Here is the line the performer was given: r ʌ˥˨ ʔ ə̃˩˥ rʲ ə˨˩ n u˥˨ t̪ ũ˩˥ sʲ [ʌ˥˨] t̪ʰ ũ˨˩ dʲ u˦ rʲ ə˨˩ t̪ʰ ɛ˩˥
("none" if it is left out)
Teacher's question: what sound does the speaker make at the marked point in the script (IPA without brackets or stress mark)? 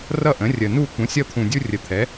ʌ˦